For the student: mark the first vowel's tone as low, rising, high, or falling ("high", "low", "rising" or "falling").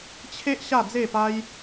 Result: high